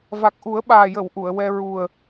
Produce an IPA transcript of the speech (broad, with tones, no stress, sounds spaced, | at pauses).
v a˨˩ k̚ ʔ u˨˩˦ ə̯ ɓ aː˨˩ j ə˨˩˨ w ʔ u˨˩˨ ə̯ w ɛ˧ ɹ u˨˩ ə̯